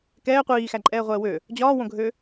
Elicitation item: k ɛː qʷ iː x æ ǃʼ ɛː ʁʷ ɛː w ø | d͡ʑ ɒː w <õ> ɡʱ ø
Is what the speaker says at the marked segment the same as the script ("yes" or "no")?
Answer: yes